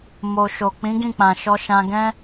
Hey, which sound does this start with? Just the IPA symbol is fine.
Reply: m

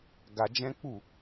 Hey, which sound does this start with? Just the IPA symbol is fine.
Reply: ɡ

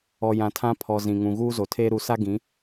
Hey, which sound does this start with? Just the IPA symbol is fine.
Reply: ɔ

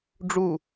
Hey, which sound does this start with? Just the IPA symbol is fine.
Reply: ɖ͡ʐ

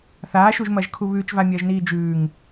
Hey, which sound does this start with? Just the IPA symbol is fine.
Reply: θ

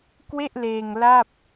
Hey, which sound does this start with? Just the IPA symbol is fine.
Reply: k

